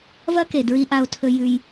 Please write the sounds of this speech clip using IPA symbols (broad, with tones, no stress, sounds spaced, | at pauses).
v ɐ˦ k e˨ d ɹ i˧ ʔ a˧ o̯ tʰ ɵ˧ j ʉ˦ j